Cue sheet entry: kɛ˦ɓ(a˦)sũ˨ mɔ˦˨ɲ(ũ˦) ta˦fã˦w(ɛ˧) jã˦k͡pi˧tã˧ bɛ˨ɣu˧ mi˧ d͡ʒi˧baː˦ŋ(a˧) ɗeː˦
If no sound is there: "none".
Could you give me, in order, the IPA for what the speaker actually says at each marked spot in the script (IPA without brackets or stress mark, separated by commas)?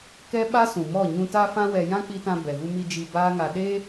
a˦, ũ˧, ɛ˧, a˧